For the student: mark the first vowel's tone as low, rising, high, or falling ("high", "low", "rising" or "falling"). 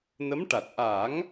rising